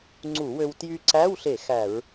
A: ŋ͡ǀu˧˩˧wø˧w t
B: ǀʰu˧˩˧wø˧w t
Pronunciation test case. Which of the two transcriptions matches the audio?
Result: A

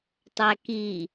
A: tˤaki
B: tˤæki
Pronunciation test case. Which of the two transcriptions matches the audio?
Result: B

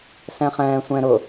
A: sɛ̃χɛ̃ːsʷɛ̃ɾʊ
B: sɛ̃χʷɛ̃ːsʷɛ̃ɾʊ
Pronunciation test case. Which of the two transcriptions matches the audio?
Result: A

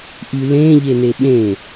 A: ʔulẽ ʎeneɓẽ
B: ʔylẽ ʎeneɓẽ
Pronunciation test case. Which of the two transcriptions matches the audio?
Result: B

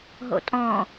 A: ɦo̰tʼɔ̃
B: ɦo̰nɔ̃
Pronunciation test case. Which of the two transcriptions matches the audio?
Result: A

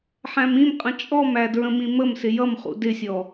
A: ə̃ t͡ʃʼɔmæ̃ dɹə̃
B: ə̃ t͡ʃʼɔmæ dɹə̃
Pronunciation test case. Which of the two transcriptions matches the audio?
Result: B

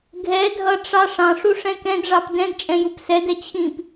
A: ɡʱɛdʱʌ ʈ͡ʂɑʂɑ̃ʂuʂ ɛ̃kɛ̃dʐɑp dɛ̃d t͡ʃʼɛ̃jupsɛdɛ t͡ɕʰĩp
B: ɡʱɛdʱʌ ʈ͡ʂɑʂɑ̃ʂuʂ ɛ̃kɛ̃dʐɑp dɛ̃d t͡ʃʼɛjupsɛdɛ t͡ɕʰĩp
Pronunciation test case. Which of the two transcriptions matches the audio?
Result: A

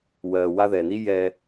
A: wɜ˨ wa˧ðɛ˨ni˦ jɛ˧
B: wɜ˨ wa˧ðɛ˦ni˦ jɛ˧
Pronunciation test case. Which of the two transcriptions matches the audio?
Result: A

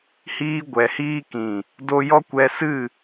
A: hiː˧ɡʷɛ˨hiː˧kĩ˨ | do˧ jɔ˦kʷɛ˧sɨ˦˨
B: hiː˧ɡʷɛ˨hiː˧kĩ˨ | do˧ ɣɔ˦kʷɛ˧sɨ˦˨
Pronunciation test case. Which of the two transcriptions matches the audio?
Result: A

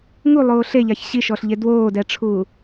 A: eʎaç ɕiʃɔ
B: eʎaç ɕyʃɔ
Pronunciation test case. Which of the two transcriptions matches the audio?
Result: A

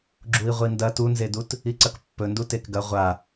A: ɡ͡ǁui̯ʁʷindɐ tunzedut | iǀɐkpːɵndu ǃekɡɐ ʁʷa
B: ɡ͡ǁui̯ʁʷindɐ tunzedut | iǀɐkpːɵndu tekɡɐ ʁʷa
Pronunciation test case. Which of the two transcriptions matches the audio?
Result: B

